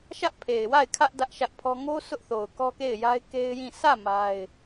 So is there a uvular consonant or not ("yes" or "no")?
no